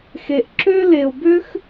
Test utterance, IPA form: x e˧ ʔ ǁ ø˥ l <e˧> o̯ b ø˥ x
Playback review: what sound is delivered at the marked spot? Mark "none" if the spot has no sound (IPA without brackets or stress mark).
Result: e˧